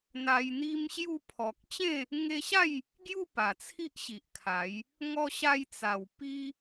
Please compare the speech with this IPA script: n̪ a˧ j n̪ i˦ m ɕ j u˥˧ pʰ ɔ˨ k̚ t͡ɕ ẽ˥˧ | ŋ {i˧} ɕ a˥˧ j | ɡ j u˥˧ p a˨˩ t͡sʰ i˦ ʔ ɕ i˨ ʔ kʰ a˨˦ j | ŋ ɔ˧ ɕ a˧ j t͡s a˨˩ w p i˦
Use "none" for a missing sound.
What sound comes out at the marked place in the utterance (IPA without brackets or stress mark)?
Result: e˧